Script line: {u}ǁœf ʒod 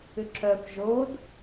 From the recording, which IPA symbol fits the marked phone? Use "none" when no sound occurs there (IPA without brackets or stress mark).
ʏ